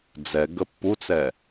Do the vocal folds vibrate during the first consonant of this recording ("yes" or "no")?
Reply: yes